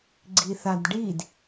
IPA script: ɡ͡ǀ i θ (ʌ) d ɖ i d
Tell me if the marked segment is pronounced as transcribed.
no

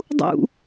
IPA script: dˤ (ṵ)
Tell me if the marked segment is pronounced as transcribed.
yes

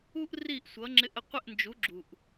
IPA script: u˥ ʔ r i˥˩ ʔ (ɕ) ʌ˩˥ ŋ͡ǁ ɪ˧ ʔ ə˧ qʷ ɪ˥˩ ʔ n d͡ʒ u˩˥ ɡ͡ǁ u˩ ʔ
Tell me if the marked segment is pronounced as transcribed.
no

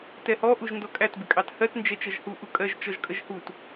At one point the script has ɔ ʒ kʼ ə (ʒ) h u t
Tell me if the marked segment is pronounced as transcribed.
yes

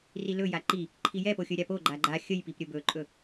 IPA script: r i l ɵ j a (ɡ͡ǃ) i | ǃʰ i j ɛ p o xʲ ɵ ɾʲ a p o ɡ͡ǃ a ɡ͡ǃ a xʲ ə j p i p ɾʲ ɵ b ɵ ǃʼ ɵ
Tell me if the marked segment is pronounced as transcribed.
no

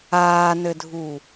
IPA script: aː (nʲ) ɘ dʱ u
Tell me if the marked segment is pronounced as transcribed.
no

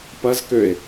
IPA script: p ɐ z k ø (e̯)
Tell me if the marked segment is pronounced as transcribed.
yes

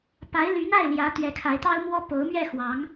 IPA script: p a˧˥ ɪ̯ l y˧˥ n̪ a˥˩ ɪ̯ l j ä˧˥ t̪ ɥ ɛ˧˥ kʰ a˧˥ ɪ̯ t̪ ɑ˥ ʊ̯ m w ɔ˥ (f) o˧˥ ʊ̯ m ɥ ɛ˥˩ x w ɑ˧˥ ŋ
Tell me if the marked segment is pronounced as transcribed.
no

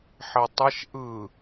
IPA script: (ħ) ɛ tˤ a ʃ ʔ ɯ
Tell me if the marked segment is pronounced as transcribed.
yes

